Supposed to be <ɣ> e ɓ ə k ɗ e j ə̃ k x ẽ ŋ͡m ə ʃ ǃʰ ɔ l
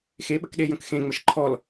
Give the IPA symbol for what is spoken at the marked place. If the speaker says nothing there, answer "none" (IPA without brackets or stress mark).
x